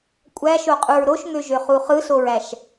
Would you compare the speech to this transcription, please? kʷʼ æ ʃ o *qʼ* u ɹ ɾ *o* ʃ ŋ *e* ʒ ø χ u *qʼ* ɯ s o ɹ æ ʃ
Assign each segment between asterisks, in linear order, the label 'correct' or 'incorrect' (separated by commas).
correct, correct, incorrect, incorrect